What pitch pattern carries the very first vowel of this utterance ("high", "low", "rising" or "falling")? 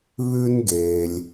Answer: high